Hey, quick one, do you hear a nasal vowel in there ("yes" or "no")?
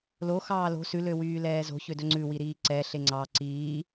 no